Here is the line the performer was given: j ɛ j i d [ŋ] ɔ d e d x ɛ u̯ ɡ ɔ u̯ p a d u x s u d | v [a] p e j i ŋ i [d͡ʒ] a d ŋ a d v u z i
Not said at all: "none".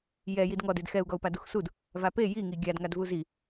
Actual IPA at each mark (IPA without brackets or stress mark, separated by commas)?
ŋ, a, ɡʲ